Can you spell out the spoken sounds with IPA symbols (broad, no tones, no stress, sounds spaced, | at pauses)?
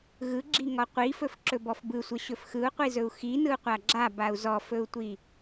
ɣ ɯ ɡ͡ǁ i ŋ ɔ qʷ i f ɵ f ǁ ɵ b ɔ f b ɯ sʷ ə ɕ ɵ f x ɯ u̯ qʷ i z ɵ u̯ x i n ɯ u̯ qʷ a ɡ͡ǁ a b a u̯ z ɔ f ɵ u̯ tʷ i